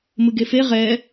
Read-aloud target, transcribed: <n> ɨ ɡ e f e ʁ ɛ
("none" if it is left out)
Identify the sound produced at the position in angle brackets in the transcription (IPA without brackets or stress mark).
m